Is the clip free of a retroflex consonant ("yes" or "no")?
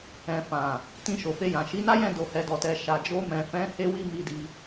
yes